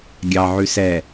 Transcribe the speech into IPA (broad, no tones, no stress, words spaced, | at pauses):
ɡʲɑʕʉ sɛ